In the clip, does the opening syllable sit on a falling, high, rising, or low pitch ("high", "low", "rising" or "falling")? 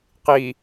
low